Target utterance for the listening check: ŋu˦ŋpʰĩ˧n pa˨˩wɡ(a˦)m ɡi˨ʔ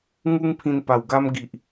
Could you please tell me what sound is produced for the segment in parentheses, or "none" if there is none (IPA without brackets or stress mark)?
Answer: a˧